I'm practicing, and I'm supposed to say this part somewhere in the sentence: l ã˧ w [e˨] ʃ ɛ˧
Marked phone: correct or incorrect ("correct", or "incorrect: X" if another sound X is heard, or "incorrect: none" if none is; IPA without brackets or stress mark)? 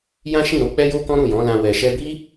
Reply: incorrect: ɛ˨